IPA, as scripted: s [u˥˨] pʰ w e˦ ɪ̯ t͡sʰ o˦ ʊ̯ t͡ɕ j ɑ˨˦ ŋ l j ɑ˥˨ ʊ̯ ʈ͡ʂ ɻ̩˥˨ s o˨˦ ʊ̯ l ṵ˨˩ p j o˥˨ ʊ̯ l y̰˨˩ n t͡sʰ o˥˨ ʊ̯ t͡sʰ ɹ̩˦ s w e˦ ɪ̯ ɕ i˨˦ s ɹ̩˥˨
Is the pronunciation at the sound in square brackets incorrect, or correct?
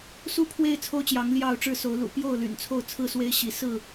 correct